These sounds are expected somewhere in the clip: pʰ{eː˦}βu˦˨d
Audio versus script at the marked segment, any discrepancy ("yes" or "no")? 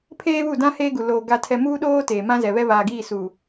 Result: no